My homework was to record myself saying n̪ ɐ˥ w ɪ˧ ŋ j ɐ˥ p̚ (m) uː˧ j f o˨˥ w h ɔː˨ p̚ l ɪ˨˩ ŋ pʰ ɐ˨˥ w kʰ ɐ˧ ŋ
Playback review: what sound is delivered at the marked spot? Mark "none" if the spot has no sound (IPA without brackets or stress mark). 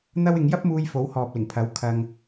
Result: m